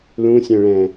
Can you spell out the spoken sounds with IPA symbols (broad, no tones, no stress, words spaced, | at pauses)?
lũsʲœ̃ɭɛ̃